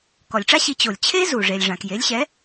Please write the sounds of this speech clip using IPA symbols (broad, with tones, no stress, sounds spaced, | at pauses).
k ɔ˩ lʲ ʈ͡ʂ a˥ ɕ i˩˥ t͡ɕ o˩ lʲ t͡ɕʰ e˥ z u˩ ʐ e˩ lʲ ʐ ã˩ k j e˩˥ lʲ ɕ ɛ˩˥